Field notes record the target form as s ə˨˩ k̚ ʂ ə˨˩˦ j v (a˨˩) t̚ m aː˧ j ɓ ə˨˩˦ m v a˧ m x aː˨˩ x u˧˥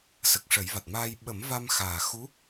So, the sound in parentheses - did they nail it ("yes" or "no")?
yes